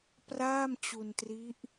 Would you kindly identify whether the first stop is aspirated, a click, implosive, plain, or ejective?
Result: plain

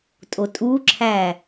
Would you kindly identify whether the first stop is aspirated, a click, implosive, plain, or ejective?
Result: ejective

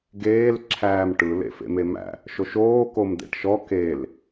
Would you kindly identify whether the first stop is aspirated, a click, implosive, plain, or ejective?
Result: plain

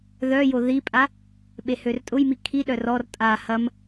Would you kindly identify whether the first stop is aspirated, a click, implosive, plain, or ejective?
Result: ejective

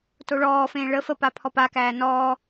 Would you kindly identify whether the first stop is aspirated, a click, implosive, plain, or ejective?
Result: plain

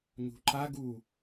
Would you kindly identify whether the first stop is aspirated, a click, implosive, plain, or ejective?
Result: click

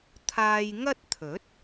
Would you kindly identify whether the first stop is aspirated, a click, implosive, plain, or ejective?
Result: aspirated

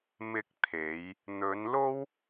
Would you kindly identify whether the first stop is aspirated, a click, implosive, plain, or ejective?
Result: plain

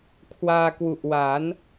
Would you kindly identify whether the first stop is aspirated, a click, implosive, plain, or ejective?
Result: aspirated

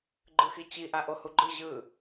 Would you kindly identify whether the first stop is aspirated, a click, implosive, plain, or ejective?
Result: click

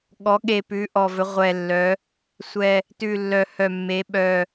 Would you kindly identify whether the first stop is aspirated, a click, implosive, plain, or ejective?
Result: implosive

